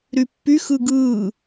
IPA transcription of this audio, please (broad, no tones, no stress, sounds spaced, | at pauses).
ɾ y pː y x ɯ ɡ ɯː